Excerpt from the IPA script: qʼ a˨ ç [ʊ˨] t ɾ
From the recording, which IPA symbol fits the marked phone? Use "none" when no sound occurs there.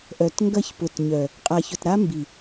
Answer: ʊ˨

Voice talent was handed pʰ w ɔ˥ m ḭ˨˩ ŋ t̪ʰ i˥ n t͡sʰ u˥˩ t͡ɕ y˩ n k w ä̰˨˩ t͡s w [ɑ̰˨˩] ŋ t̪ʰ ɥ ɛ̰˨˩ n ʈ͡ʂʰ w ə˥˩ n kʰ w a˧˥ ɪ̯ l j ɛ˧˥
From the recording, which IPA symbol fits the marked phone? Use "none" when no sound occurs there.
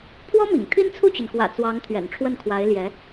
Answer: ɑ˧˥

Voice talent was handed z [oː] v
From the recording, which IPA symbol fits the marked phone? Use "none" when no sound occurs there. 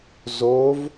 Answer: oː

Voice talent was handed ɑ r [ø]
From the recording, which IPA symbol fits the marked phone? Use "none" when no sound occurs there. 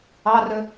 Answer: ø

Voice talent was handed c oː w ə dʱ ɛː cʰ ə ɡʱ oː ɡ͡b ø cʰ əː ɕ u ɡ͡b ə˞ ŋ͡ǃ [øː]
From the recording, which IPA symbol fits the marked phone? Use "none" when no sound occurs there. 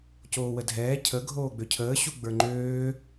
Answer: øː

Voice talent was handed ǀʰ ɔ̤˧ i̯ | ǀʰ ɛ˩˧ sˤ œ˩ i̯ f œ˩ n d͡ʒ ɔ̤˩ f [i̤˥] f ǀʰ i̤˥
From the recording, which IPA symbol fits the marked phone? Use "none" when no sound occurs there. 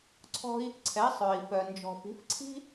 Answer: i̤˩˧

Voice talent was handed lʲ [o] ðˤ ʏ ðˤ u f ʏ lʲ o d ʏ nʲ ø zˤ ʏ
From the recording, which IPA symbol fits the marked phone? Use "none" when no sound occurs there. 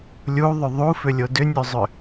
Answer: u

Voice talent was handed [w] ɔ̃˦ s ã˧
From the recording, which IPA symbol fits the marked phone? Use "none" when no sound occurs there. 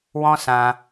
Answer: w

